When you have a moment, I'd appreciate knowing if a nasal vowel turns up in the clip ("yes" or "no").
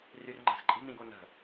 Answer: yes